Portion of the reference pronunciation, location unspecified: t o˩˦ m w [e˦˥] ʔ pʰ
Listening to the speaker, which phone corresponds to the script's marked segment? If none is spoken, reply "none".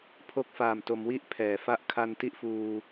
i˦˥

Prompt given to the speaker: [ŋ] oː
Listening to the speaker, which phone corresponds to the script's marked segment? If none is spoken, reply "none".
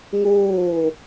ŋ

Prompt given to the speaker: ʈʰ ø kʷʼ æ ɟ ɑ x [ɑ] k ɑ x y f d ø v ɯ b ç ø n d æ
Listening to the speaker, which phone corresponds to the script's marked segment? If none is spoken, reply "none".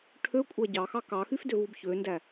ɑ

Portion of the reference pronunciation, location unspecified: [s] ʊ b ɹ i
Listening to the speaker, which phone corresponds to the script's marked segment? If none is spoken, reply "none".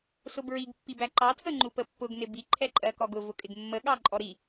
s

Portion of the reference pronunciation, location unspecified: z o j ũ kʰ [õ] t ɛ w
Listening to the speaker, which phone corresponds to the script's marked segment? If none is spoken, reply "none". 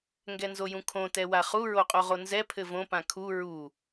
õ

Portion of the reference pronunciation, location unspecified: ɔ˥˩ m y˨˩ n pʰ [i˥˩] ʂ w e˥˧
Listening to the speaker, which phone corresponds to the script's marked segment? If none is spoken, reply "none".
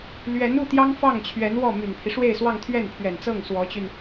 i˦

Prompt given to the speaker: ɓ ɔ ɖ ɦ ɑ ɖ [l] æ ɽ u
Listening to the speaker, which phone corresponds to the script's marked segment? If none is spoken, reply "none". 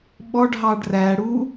r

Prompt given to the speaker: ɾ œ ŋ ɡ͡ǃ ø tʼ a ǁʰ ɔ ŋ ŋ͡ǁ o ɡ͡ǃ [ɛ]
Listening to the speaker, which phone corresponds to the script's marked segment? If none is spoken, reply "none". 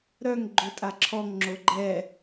ɛ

